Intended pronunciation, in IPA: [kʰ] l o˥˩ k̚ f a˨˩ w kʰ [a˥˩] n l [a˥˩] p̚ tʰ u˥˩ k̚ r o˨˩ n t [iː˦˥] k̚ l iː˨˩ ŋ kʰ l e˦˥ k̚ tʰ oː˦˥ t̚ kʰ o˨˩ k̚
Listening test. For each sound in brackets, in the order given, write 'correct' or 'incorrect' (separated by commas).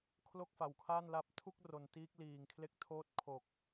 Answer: correct, correct, incorrect, correct